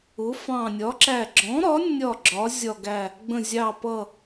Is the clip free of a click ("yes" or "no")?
no